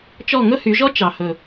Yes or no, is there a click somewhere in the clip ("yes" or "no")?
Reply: no